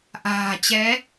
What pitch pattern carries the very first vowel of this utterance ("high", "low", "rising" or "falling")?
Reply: low